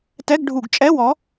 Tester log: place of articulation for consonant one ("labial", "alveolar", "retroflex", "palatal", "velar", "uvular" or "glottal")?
alveolar